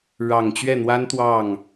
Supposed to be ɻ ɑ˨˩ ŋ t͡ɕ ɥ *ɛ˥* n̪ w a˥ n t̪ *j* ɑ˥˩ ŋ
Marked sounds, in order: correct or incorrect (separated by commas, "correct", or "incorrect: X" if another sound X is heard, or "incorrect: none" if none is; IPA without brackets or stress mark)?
incorrect: ɛ˥˩, incorrect: w